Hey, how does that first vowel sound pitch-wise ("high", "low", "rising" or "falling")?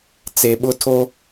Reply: low